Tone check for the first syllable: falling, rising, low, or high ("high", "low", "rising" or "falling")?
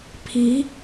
rising